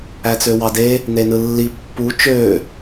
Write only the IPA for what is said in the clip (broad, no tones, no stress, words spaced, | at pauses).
æt͡søwɑde | nenɯlːi pːu t͡ʃø